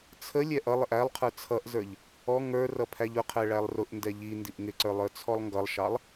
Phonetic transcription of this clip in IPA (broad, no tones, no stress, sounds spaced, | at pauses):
t͡sʰ ə lʲ ɛ ʔ ʌ lˠ ɪ ʔ æ lˠ qʰ ə˞ t͡sʰ ʌ ʔ z ə˞ ʎ | ɔ ŋ ə˞ r ʌ pʰ æ ʎ ʊ qʰ ɛ ɭ æ lˠ r ʊ ʔ n d ɛ ʎ i n d i ʔ ŋ ɪ ǀ ə˞ lˠ ə˞ t͡sʰ ɔ lˠ ŋ ɡ ʌ lˠ ʃ ɑ lˠ